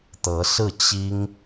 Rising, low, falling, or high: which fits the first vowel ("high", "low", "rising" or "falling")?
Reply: rising